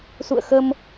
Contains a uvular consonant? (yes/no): no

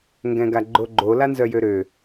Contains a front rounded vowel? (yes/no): yes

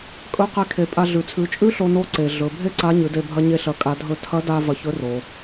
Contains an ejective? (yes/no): yes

